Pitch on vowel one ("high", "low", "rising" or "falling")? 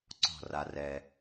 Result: falling